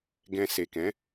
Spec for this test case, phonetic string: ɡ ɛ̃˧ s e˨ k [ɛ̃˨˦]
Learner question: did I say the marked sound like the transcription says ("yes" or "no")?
yes